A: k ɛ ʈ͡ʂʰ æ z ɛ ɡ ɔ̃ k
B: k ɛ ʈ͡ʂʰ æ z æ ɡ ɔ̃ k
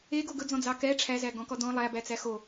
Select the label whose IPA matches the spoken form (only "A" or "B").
B